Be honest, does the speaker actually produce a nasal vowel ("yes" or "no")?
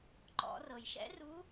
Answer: no